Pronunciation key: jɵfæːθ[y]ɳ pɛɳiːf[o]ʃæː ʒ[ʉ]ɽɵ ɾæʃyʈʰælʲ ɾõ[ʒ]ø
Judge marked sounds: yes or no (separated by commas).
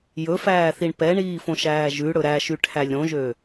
no, no, yes, yes